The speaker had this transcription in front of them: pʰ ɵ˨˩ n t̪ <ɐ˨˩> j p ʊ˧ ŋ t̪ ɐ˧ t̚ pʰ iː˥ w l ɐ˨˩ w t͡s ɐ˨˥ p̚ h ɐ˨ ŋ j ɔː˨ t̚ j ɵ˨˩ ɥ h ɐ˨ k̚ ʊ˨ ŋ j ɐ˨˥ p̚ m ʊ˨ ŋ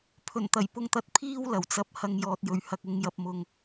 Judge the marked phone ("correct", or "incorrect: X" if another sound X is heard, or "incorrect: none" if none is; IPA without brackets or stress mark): correct